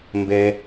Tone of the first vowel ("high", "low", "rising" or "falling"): low